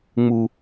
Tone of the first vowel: low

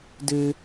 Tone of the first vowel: high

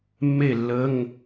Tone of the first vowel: falling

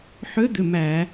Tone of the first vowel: rising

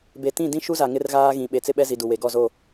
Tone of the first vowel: low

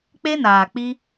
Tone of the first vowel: high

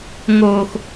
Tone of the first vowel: low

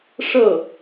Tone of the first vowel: falling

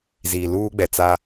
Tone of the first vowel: low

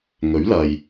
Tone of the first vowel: rising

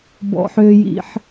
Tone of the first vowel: high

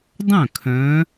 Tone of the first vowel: falling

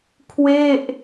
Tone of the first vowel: falling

